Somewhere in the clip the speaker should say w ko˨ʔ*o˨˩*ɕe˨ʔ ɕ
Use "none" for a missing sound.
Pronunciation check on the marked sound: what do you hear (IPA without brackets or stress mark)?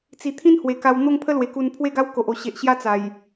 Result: o˨˩